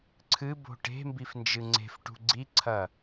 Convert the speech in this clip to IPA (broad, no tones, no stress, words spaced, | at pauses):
ǀʰɨbo̤ ʈe̤mbifnd͡ʒɨ ŋ͡ǀe̤fʈṳ ɡ͡ǀiǀʰɐ